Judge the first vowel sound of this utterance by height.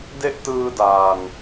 mid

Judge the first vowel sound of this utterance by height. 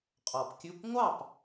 mid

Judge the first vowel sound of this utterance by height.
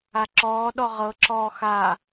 low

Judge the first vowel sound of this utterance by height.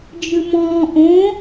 high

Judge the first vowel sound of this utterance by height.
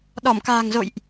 mid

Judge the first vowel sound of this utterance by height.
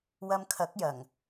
low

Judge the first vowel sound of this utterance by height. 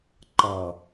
mid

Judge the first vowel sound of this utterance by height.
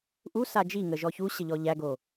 high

